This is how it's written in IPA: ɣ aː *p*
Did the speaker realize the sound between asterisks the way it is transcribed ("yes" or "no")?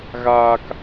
no